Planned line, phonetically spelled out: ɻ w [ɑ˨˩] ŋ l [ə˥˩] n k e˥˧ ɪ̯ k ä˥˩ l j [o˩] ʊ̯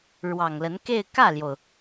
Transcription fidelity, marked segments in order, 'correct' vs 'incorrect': correct, incorrect: ə˧˥, correct

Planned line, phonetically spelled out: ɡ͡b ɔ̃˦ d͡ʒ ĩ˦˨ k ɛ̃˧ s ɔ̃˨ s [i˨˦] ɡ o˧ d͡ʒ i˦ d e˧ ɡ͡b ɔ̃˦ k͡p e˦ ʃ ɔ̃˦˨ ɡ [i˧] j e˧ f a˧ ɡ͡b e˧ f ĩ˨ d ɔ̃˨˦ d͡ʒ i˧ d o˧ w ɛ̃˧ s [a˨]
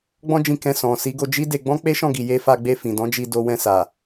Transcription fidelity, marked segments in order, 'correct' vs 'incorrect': correct, incorrect: i˨, correct

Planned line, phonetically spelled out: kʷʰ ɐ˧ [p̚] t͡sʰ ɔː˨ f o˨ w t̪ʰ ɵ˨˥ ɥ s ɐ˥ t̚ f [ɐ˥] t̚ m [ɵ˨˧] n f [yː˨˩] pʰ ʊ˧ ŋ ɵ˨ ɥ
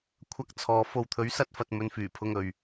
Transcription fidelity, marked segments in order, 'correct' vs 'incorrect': incorrect: k̚, incorrect: ɐ˧, correct, correct

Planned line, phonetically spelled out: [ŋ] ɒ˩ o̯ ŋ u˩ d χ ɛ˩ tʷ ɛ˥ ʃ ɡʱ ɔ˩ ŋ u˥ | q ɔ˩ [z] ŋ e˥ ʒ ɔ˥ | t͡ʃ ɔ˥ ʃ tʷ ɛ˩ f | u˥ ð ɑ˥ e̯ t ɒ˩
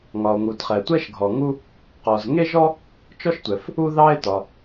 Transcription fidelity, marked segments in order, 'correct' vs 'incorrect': correct, correct

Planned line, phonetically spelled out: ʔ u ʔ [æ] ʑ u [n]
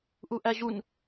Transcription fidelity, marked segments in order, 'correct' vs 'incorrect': correct, correct

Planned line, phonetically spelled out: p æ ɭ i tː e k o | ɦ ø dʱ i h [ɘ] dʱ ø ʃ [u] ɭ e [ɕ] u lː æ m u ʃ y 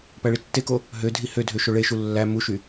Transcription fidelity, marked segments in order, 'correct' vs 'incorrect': incorrect: ø, incorrect: o, incorrect: ʃ

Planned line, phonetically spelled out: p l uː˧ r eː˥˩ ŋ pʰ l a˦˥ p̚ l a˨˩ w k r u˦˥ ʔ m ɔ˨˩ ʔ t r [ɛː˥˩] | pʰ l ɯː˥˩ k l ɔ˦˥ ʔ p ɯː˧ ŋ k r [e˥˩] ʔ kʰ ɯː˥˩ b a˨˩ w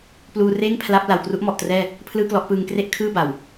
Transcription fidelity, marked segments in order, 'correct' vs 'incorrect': correct, correct

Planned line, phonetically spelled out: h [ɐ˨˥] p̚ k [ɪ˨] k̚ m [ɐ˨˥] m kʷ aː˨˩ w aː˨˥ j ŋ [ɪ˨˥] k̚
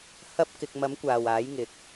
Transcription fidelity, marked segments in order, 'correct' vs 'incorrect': incorrect: ɐ˥, correct, correct, incorrect: ɪ˨

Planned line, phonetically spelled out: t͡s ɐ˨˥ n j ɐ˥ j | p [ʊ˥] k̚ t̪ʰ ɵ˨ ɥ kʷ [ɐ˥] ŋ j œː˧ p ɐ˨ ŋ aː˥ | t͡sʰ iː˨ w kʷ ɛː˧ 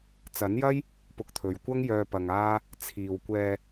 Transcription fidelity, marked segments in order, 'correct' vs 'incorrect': incorrect: ʊ˧, correct

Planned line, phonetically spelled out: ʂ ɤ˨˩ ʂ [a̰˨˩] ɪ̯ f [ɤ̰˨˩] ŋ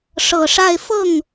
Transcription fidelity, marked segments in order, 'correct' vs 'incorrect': incorrect: a˥˧, incorrect: ɤ˥˩

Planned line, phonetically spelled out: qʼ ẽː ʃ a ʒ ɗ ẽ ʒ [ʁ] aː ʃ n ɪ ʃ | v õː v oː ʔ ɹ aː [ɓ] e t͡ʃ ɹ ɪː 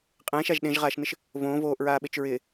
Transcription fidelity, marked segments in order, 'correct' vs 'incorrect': correct, correct

